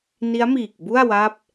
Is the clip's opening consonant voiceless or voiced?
voiced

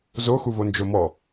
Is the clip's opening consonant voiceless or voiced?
voiced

